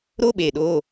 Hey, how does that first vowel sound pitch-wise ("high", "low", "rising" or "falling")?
high